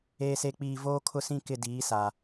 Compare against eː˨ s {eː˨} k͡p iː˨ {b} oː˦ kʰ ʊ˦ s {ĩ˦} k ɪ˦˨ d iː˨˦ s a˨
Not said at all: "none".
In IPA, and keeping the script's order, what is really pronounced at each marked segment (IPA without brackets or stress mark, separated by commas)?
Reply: e˨, v, ĩ˦